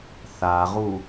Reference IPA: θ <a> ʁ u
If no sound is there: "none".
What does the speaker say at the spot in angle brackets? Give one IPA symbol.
a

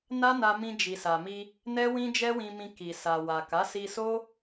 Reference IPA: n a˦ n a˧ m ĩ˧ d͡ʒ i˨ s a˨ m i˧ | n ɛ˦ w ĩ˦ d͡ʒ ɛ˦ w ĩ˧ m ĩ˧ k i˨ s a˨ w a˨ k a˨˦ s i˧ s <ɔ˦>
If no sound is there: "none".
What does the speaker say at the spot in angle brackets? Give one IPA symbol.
o˦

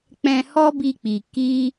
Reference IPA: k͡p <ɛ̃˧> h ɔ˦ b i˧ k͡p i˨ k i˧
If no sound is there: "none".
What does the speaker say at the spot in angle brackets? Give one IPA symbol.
ɛ̃˧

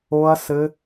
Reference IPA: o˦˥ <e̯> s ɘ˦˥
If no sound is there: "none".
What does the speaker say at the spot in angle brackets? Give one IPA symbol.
ɐ̯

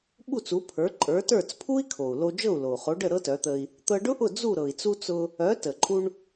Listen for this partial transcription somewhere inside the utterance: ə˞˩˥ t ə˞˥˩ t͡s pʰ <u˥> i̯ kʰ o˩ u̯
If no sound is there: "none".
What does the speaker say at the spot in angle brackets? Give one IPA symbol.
u˥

